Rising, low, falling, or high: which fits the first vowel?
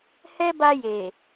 high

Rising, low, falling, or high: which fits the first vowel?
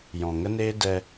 low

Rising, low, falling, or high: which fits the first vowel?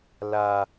high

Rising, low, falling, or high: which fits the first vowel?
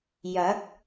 rising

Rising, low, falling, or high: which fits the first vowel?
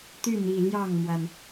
falling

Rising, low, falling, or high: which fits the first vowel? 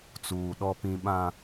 low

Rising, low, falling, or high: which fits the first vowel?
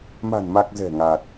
low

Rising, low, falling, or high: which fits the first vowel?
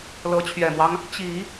rising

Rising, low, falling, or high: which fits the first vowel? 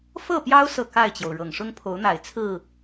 falling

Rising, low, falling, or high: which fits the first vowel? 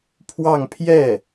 falling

